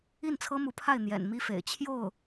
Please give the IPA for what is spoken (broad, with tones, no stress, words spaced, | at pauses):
i˥˩nt͡sʰɤ˥mu˧˥pʰa˥˩ɪ̯ n̪jɛ̰˨˩nmi˥fḛ˨˩ɪ̯ t͡ɕʰjo˥˩ʊ̯